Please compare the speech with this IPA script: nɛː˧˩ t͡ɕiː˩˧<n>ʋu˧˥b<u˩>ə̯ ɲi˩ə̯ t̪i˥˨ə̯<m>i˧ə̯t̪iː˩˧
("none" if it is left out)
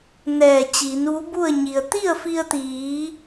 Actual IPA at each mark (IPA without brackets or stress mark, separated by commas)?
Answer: n, u˥˨, f